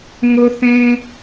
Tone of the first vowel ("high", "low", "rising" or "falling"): high